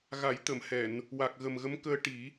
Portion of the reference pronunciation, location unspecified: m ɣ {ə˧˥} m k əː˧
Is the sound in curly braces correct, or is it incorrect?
correct